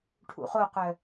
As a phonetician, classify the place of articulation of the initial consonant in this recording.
retroflex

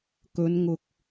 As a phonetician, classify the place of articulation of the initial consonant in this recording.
velar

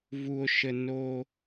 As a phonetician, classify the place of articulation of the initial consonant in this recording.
labial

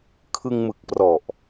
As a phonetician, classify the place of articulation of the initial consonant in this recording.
velar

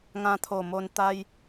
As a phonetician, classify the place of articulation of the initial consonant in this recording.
velar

